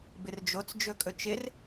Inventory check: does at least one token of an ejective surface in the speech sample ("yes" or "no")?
yes